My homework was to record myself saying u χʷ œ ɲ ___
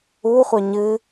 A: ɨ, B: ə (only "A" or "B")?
A